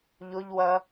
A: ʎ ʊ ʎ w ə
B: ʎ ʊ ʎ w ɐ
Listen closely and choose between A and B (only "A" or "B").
B